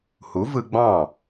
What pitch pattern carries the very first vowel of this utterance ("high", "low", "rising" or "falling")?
rising